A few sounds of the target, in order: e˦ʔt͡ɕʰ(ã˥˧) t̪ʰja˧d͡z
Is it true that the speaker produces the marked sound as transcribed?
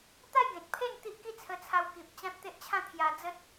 yes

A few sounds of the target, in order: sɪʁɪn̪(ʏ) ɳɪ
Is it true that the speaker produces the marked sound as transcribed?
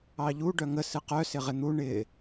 no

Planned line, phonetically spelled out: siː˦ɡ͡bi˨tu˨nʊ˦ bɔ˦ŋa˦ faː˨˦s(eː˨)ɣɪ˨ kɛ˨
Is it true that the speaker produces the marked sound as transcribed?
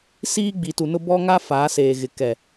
yes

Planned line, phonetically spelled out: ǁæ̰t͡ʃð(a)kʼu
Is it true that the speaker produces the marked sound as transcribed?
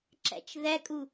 no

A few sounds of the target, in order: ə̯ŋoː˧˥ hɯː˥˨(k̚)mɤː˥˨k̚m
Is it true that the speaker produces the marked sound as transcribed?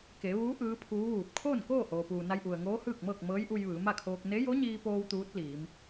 yes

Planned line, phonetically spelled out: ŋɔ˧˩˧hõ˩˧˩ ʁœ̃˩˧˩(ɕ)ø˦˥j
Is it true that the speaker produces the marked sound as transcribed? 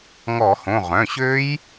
yes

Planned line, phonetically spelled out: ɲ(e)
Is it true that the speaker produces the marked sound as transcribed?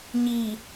no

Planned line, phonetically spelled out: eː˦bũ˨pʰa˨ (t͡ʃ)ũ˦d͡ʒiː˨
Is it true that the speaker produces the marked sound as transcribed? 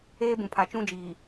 yes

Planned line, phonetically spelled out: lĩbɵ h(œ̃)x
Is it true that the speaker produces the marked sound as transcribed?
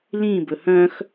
yes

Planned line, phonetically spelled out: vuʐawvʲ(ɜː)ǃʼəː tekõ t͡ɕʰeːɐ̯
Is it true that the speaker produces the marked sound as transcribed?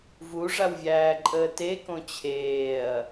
no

